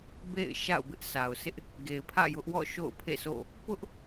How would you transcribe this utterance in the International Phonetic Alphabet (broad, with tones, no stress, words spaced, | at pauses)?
bḛ˦˨ɪ̯ʃa̰˦˨ʊ̯ bɪ˦ʔsʰa˨ʊ̯ sʰɪ˦ʔ | ɡe˨ɪ̯pʰä̰˦˨jʊ˦ʔwɔ̰˦˨ ʃo̰˦˨ʊ̯pʰḛ˦˨so̰˦˨ | pʊ˦ʔ